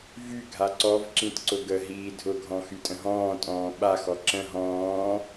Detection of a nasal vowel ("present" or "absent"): present